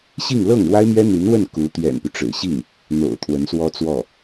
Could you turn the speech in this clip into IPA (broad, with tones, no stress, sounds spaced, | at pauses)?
ɕ i˥˧ ŋ l ɤ˥˩ ŋ ɻ w a˥ ɪ̯ m ɥ ɛ˥ n̪ y˧˥ n w ə˥˩ n k u˧˥ t̪ ɥ ɛ̰˨˩ n p y˦ ʈ͡ʂ ɻ̩˨˩ ɕ i˥˩ ŋ | n̪ o̰˨˩ ʊ̯ t̪ʰ w ə˧˥ n s w ɔ˥ t͡s w ɔ˥˩